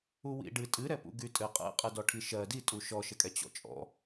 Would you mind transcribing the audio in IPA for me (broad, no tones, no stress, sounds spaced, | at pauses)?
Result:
u w ḭ ɖ ɨ tʼ ɨ ɾ ɛ p ṵ ɡ y tʼ ɘ qʼ ɛ̰ qʼ ɨ d ɔ ʈʰ i ʃ ɜ d i tʼ u ʃ ɔ ʃ ɘ kʼ ɛ t͡ɕ ɔ̰ t͡ʃʼ ɔ̰